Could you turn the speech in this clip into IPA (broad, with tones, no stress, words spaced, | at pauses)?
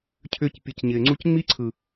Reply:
cʰʏː˧cpʲɯ˨c ɲɪː˨ŋ͡ǀu˦c ŋ͡mi˦ǀʰɯ˨